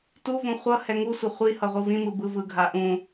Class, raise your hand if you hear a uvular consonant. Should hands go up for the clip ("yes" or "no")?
yes